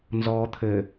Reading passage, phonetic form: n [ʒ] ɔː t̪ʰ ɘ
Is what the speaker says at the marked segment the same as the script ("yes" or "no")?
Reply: no